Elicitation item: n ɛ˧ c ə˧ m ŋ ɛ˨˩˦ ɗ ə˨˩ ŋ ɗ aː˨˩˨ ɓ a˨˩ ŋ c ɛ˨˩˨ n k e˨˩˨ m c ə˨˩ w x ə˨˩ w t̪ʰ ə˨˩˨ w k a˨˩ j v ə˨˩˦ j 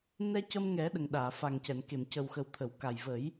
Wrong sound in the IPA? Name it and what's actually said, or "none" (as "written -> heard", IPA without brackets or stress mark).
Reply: ɓ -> f